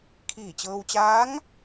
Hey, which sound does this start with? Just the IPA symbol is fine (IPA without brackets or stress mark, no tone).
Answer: kʰ